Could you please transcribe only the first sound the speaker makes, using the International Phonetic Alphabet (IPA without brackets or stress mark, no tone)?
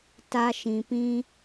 t